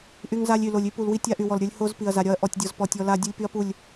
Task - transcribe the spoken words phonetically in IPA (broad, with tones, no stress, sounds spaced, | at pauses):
ʔ y˦ ŋ z a˦ lʲ y˨ l o˨ lʲ y˦ p u˨ l w i˦ tʲ a˦ ʔ y˨ w ɔ˨ l ɾʲ ə˞˦ lʲ h o˦ z p i˨ ɐ̯ z a˨ ɾʲ ɒ˦ ɐ̯ ʔ ɔ˨ tʲ dʲ ɔ˨ z p ɔ˨ tʲ ɔ˦ l a˦ dʲ u˦ lʲ p y˦ ɐ̯ p u˦˨ lʲ